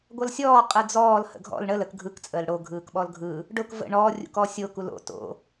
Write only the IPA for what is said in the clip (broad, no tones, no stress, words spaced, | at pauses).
ɡʷʌlsʲɔː qʼɯd͡zɔːl hə̰ɡʱɔ̰l ɳəl ək ɡʱɯk t͡sʼəːlɽo ɡʱɯːkɓɔlɡʱɯ | ɖʊk və̰ ɳɔː rʲṵkɔsʲo kulo̰ to̰